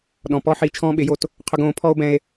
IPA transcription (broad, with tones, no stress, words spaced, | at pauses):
ɗɔ̃˨pɔ˦ ħiː˧t͡ʃʰɔ̃ː˦ɓɪ˨˦jo˧t | qʰʊ˧ɡõː˨˦ pʰɔ˦o̯bɛ̃˧e̯